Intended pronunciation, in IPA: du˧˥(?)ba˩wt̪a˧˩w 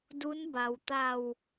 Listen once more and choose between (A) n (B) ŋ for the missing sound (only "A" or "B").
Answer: A